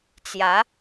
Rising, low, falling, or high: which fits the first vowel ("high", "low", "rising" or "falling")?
rising